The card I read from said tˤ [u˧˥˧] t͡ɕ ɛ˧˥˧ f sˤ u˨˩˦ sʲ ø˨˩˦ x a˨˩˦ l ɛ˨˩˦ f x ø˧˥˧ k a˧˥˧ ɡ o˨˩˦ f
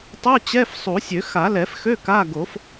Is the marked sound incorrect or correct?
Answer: correct